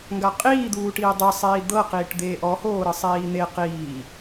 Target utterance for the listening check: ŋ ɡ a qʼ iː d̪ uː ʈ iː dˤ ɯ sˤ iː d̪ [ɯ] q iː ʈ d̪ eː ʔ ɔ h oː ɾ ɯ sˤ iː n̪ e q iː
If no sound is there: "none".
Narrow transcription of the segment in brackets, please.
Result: ɤ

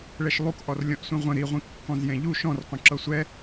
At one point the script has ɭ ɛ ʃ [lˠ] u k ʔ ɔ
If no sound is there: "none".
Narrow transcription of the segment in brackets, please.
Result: lˠ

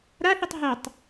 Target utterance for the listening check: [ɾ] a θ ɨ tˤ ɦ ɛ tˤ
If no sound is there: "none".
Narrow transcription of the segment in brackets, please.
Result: ɾ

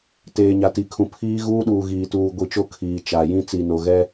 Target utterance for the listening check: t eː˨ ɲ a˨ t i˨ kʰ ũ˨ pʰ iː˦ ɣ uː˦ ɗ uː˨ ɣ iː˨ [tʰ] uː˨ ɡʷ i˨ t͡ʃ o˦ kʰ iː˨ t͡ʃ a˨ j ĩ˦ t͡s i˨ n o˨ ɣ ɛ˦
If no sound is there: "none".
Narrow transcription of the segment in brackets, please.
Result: t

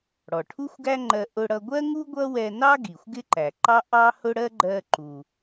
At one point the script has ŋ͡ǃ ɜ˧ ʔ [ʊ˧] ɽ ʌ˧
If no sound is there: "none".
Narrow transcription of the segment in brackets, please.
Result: ʊ˧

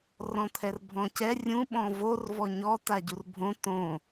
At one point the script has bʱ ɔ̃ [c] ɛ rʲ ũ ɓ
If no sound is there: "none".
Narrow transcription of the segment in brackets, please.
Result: c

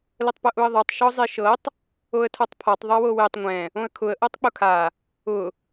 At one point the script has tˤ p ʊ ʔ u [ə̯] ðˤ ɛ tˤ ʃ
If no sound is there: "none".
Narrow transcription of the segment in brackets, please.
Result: ə̯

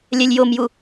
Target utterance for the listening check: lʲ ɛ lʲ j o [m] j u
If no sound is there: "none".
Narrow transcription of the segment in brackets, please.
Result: m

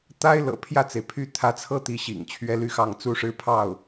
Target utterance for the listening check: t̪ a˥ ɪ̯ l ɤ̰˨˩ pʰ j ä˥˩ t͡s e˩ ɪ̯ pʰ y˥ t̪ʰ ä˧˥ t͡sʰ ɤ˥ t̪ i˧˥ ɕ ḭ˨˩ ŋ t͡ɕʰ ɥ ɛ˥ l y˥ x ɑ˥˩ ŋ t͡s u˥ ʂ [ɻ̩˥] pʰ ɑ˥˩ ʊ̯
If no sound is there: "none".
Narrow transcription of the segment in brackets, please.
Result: ɻ̩˥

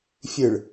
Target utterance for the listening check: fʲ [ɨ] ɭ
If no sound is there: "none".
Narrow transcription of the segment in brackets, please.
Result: ɨ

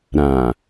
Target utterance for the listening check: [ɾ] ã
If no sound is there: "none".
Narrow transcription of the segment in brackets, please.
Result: ɾ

